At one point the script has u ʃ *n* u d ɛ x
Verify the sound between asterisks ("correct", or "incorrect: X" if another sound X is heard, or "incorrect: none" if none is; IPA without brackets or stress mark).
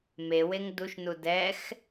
correct